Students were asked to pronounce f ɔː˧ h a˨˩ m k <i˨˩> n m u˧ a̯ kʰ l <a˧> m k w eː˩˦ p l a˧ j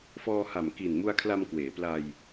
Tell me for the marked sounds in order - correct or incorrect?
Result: correct, correct

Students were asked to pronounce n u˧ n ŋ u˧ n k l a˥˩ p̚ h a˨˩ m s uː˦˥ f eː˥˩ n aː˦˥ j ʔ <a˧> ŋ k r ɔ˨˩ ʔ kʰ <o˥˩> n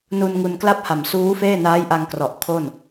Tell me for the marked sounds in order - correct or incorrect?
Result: correct, correct

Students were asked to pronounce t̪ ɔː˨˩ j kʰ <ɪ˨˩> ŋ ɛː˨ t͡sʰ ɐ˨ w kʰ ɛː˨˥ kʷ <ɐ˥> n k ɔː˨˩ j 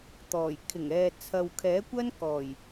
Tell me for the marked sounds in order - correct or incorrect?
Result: correct, correct

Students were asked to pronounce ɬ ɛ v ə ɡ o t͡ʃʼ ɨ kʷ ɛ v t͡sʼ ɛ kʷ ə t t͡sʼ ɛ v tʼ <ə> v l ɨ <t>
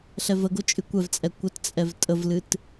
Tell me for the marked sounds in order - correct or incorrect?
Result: correct, correct

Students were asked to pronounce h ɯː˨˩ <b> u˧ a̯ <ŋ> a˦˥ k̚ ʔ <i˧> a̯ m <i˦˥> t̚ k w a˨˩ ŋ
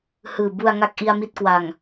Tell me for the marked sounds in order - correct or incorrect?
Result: correct, correct, correct, correct

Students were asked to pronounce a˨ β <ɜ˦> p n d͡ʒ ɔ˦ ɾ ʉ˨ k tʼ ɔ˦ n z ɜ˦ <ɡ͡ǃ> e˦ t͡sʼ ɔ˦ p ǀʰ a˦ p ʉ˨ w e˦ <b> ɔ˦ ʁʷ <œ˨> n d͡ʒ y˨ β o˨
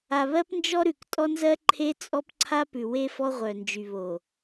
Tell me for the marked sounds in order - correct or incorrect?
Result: correct, incorrect, incorrect, correct

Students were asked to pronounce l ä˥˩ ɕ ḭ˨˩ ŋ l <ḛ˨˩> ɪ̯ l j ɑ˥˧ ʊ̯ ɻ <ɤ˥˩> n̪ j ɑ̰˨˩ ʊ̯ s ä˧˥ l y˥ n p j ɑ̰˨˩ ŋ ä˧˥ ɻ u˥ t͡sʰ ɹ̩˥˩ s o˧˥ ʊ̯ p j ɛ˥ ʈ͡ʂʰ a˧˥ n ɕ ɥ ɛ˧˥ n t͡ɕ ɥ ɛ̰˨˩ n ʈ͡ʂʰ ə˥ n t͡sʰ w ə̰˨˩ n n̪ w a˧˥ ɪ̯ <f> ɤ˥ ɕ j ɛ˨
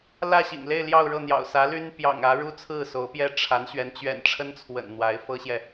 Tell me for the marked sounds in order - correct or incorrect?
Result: incorrect, correct, correct

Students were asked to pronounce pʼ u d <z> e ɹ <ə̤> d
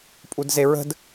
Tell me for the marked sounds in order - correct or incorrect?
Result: correct, correct

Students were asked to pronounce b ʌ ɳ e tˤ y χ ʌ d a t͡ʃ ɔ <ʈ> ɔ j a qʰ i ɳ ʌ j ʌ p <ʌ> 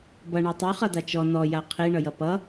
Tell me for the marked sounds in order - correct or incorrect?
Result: incorrect, correct

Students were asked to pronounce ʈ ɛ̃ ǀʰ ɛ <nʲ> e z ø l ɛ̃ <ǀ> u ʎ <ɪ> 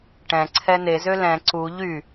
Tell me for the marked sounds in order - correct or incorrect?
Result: incorrect, correct, incorrect

